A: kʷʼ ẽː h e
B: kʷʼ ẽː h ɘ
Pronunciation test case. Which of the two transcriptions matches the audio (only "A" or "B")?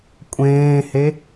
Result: A